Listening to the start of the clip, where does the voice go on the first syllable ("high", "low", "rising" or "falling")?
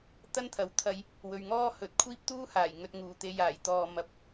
high